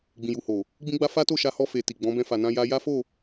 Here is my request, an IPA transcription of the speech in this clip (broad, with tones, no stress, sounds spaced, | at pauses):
ɡ͡b ĩ˨ j u˨ h o˨ | ɡ͡b ĩ˦ ɡ͡b a˦ f a˦ t o˦˨ ʃ a˧ h ɔ˧ f e˨ t i˨ ɡ͡b ɔ̃˨˦ b ɛ̃˧ f a˨ n ã˧ j a˧ j a˦ f o˦˨